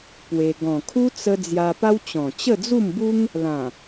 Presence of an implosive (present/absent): absent